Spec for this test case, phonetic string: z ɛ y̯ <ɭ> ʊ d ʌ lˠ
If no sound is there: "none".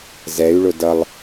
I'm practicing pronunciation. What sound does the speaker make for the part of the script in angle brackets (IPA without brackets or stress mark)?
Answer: ɭ